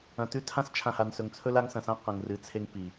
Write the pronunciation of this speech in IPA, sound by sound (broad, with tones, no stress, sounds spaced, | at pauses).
ɐ̃˨ t ʉ˦ tʰ ã˦ s t͡ʃʰ ã˨ h a˨ n s ɵ˨ ŋ t͡sʰ ɵ˦ l a˦ ŋ s ɐ̃˨ s ã˦ q ɐ̃˨ ŋ r ɨ˨ t͡sʰ e˦ ŋ p i˨